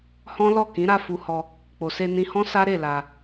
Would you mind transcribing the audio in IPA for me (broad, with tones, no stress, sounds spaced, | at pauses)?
h ɔ̃˦ l ɔ˦˨ k ĩ˨˦ ɾ a˦˨ f u˧ h ɔ˧ | k͡p o˨ s e˧ n ĩ˧ h ɔ̃˦ s a˦ ɾ e˦˨ l a˧